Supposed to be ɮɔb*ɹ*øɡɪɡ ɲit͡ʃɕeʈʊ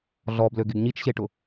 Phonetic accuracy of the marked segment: incorrect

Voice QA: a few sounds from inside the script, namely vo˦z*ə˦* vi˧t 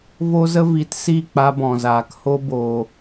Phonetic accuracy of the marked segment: correct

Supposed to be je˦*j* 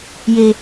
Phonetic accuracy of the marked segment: incorrect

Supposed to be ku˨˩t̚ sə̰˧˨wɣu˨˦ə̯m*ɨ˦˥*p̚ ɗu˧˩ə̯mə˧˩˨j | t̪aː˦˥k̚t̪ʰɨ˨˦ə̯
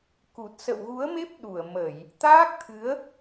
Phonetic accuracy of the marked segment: incorrect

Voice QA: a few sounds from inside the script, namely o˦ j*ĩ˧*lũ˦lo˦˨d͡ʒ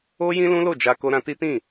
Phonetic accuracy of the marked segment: incorrect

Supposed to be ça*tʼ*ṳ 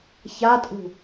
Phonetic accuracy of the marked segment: correct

